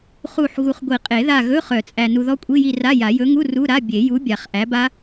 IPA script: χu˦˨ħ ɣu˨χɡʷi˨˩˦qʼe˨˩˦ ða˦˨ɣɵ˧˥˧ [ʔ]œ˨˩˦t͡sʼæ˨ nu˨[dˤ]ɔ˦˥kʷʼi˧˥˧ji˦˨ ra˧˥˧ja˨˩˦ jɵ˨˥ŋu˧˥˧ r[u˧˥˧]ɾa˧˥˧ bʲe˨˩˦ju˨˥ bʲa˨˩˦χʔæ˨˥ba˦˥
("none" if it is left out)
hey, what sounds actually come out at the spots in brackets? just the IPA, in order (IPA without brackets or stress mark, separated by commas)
χ, ð, u˧˥˧